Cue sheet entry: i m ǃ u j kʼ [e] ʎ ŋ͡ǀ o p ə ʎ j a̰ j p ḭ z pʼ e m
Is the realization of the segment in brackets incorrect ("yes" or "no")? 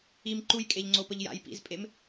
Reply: no